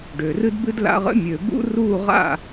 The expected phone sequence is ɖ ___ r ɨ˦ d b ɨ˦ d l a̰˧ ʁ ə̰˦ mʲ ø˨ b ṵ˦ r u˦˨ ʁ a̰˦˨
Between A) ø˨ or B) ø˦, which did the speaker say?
A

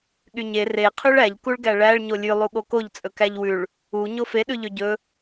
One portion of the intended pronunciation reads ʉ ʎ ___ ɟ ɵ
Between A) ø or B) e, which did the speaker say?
A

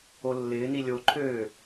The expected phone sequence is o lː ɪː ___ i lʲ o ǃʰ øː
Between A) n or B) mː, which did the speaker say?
A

